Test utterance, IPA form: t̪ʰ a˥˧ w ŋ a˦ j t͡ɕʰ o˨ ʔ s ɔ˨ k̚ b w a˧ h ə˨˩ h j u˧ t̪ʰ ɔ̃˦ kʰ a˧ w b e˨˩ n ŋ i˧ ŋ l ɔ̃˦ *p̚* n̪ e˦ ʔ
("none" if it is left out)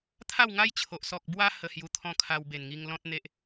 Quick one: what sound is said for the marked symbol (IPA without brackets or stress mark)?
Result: t̚